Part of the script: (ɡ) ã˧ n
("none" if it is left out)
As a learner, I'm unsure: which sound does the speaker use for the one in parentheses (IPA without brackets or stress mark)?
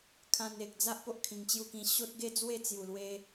kʰ